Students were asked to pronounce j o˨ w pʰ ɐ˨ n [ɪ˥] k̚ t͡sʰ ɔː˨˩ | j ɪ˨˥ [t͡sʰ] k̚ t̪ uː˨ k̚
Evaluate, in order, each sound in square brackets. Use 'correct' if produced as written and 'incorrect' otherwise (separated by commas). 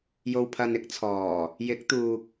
correct, incorrect